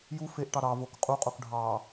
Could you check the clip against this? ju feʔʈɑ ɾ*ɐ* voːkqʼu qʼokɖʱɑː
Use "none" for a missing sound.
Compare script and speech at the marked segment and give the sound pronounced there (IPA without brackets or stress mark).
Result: ɑ